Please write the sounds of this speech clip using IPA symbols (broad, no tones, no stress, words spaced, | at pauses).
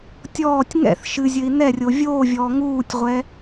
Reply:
tʲɔːtʲ ŋɛ̰θ ʃɨzʲɘi̯ nɛrʲo vʲoːvʲɔː ŋuːtʲʁʷɛ